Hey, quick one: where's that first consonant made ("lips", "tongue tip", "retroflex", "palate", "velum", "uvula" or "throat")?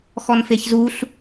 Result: velum